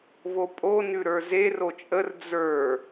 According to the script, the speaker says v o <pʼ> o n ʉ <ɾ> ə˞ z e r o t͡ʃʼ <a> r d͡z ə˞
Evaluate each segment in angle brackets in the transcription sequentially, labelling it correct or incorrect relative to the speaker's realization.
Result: correct, correct, incorrect

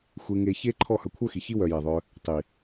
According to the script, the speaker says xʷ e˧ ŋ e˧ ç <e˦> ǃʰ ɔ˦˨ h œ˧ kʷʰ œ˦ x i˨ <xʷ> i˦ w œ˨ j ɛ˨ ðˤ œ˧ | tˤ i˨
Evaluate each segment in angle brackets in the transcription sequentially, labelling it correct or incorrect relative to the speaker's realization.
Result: correct, incorrect

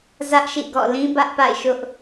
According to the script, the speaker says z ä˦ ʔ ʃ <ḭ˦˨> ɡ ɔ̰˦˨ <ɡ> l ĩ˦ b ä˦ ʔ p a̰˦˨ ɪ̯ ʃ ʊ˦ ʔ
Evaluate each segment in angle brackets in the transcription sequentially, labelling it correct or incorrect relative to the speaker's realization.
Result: correct, incorrect

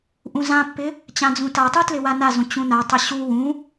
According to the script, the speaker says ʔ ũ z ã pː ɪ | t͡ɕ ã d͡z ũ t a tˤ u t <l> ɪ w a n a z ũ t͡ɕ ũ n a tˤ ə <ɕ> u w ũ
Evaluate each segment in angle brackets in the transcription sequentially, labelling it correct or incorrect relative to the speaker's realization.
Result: correct, correct

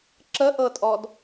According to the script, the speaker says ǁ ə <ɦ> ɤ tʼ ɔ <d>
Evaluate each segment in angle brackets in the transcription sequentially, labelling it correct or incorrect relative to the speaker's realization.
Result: incorrect, correct

